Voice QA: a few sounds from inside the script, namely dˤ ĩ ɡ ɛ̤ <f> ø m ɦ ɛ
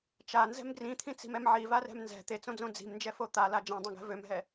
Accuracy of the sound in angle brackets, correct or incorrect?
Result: incorrect